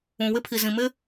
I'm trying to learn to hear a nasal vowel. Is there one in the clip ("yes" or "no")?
yes